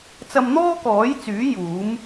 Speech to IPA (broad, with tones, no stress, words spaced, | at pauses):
t͡sɐ˧mn̪ɔː˥kɔː˨˥jt͡syː˨˥ juː˨˥m